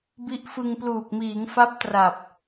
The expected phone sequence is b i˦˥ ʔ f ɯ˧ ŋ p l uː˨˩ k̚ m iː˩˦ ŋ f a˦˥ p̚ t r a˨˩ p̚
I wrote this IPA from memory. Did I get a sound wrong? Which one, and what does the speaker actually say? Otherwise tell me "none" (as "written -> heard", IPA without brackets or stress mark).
none